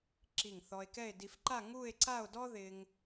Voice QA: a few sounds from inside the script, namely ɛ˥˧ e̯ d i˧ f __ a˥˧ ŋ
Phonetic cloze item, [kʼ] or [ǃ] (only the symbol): ǃ